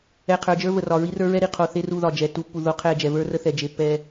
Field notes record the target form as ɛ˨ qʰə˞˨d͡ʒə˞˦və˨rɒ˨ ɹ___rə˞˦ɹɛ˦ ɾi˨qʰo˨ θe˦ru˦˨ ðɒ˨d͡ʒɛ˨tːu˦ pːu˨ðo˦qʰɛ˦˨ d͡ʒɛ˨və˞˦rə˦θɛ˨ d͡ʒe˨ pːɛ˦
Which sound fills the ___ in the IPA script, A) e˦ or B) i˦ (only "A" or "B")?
B